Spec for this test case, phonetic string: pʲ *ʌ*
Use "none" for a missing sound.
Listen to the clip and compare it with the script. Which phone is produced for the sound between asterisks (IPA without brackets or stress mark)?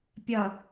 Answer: ʌ